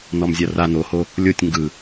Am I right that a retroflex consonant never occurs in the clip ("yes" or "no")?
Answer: yes